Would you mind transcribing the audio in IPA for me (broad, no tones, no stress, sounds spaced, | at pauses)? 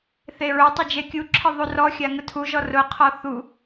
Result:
θ e ɹ ʊ tˤ ɪ d͡ʒ e kʲ u ǁʰ ɪ ðˤ u r ɔ xʲ a ŋ ʊ tʰ u ʒ ɔ r ʊ qʰ ɔ θ u